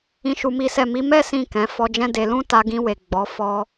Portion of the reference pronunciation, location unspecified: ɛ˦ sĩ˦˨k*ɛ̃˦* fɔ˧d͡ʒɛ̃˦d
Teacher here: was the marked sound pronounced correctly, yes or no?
no